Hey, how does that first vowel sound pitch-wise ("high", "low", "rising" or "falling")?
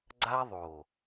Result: high